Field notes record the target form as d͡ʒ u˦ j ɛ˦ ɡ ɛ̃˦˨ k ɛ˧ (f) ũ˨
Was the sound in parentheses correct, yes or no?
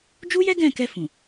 yes